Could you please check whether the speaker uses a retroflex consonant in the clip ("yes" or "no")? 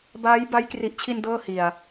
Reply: no